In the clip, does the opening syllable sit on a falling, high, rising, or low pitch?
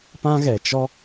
high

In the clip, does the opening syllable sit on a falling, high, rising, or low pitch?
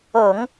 low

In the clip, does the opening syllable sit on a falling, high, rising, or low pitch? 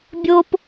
low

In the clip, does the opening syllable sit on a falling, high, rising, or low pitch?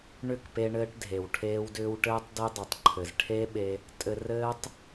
falling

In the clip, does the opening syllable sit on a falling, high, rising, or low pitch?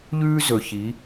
high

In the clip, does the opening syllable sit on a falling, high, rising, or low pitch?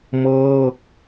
falling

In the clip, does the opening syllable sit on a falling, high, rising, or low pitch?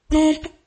high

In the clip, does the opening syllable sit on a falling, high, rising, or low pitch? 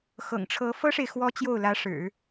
low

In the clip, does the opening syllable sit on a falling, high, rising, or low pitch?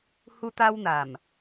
high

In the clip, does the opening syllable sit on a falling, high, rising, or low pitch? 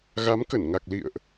rising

